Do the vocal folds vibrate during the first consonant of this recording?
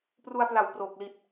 no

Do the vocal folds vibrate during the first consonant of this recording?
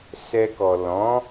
no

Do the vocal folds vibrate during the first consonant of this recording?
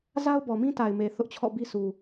yes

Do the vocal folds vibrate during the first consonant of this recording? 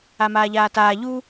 yes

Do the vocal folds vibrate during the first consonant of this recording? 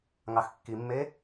yes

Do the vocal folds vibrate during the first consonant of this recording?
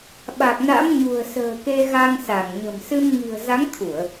yes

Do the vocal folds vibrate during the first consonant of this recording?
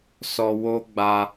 no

